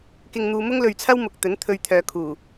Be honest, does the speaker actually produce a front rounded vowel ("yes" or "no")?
yes